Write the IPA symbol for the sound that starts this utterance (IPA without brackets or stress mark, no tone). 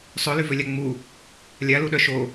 sˤ